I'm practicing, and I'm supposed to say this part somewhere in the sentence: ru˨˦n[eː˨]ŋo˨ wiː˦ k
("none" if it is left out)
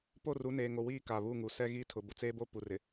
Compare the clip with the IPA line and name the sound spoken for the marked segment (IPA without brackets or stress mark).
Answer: eː˨